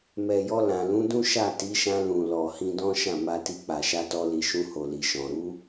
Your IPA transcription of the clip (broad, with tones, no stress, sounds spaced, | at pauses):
m ɛ˨ j ɔ˧ l ã˨ l ũ˨˦ d ũ˦ ʃ a˦˨ t i˨˦ ʃ ã˧ l ũ˨ l ɔ˨ h ĩ˧ d ɔ̃˦ ʃ ã˦˨ m a˧ t i˧ k͡p a˨ ʃ a˧ t ɔ˧ l i˨ ʃ ũ˧ h o˨ l i˨ ʃ ɔ̃˨ ɾ u˨˦